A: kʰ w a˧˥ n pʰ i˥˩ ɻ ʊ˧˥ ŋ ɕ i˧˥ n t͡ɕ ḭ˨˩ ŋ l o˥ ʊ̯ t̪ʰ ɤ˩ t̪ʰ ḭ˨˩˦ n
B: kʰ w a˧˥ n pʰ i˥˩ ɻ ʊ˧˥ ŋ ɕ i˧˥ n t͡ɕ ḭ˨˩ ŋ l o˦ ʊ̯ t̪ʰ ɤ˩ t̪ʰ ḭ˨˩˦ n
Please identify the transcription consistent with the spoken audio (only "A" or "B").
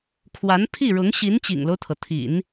B